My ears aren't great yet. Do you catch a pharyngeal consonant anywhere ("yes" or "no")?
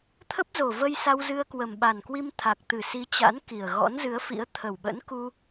no